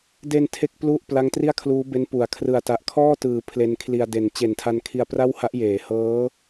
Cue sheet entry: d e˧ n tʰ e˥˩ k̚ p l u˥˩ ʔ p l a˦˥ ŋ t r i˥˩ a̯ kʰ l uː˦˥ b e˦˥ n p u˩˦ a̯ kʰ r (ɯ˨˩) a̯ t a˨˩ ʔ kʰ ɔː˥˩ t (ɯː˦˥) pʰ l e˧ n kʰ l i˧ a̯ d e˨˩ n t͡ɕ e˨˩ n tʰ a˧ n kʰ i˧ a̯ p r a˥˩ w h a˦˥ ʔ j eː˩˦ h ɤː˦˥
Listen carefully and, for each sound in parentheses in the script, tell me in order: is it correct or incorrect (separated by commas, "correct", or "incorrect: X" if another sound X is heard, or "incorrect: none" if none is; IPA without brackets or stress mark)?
correct, incorrect: ɯː˩˦